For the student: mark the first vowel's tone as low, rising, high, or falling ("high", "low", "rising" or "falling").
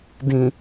low